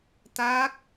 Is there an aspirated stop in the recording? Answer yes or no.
no